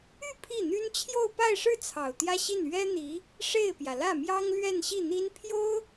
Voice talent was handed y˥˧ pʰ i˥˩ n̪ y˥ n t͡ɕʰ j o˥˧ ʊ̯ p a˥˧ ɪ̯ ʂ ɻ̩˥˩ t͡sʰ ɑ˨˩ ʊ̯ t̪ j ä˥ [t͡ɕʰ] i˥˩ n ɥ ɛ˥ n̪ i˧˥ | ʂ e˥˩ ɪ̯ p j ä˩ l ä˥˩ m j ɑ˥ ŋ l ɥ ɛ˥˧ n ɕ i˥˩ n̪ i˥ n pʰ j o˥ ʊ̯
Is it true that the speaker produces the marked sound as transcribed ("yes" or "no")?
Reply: no